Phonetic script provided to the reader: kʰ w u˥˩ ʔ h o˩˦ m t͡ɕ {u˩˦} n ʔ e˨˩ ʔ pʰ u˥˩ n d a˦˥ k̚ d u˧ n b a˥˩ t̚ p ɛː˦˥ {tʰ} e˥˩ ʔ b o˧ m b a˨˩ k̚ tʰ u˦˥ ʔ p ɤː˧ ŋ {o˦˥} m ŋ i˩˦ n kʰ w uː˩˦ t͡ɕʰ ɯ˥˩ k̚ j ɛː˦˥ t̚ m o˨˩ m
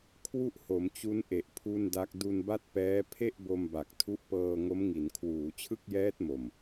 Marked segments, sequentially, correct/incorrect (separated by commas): incorrect, incorrect, correct